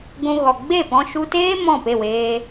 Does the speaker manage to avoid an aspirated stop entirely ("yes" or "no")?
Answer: yes